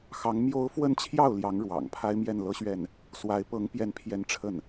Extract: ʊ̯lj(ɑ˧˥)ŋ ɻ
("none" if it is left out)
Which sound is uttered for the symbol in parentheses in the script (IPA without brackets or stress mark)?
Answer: ɑ˧˥